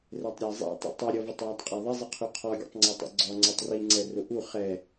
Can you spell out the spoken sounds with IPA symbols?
r ɛ tˤ ɾʲ æ zˤ ɛ̰ tˤ ḭ tˤ i ɾʲ ɔ v ə tˤ j æ tˤ qʼ ɑ ðˤ ɪ zˤ ɪ qʰ u qʰ ɔ ɡʲ ɛ̰ tˤ ŋ͡ǀ ɛ tˤ ɛ̰ ɡ͡ǀ ɔ ŋ͡ǀ ə˞ tˤ r i ŋ͡ǀ ɛ r ʊ ʔ u χ ɛ

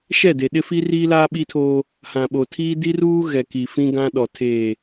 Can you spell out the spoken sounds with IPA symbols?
ʃ ɛ˦˨ d e˨ ɗ ɪ˦ f i˦ r i˦ l aː˦ ɓ i˦ tʰ oː˦ | h ã˨ ɓ o˨ tʰ iː˦ d i˦ r uː˦ ɣ ɛ˨ k i˨ f ĩ˦ ɡ ã˦ ɗ ɔ˨ tʰ eː˨

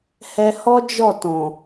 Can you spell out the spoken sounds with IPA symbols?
h ɛ˧ h ɔ˦ d͡ʒ ɔ˦˨ t ɔ̃˨

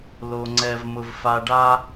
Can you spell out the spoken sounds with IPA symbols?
l o˨ ŋ͡ǀ ɛ˨ v m ʊ˨ v f a˨ ɖ a˦

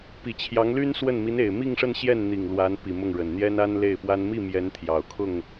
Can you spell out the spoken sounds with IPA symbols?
p i˨˩ t͡ɕʰ j ɑ˧˥ ŋ l y˥ n s w ə˥˩ n m i˧˥ n e˨˩ ɪ̯ m i˥˧ ŋ ʂ ə˥˧ n ɕ j ɛ˥˩ n n̪ i˨˩ ŋ l w a˧˥ n p i˨˩ m ʊ˥˩ ŋ ɻ ə˨˩ n n̪ j ɛ˥ n a˥ n l e˥˩ ɪ̯ p w a˥ n m i˥˩ m j ɛ˧˥ n t̪ʰ j ɑ˨˩ ʊ̯ kʰ ʊ˥˩ ŋ

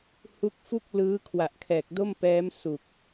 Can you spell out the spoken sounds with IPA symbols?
h u˦˥ k̚ f u˥˩ k̚ l ɯː˦˥ kʰ w a˨˩ ʔ kʰ ɛː˨˩ k̚ d o˥˩ m p ɛː˦˥ m s u˨˩ k̚

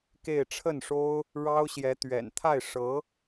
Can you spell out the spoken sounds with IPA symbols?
k e˥˧ ɪ̯ ʈ͡ʂʰ ə˥˩ n ʂ o˥ ʊ̯ | ɻ ɑ˥ ʊ̯ ɕ j ɛ˧˥ t̪ ɥ ɛ̰˨˩ n t̪ʰ a˥˩ ɪ̯ ʂ ɤ˧˥

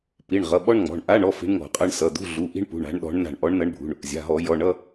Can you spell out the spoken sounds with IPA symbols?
p i˩˧˩ ɳ ʁ ʌ˩˧˩ ɓ ɔ˥ ɳ ŋ͡m ɔ̤˩˧˩ ɳ ʔ a˧˥˧ ɳ ɔ˧˥˧ f i̤˧˥ ɳ ŋ ɔ̤˧˩˧ qʼ ʌ˧˥˧ ɳ s ʌ˩˧˩ d̪ ṳ˧˥˧ ɮ u˩˧˩ ʔ i̤˥ ɳ p ṳ˩˧˩ ɳ a̤˧˥ ɳ ɗ ɔ̤˧˥ ɳ n a̤˧˩ ɳ ʔ ɔ˧˥ ɳ n ʌ˧˥ ɳ bʱ ṳ˩˧˩ ɳ | zʲ a̤˩˧˩ ɦ ɔ˧˩˧ j ɔ˩˧˩ ɳ ʌ˧˥˧

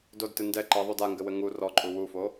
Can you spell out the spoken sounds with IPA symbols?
d o d t ɨ n d ɛ ǃ ɛ ðˤ u d a ŋ ɡ ɘ w ɘ ŋ u r ɔ ǃʼ u w u f o

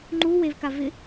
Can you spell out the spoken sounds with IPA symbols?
ŋ͡ǃ u w e v k a v ɪ

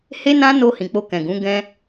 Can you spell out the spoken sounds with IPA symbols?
h e˦ n ã˦ n o˧ h ĩ˨ k͡p o˧ k ɛ̃˨ ɡ ũ˨˦ ɡ ɛ̃˦

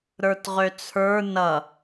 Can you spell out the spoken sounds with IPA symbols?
ɾ ə˞ t ʁ ø t͡sʰ ə˞ n ʌ

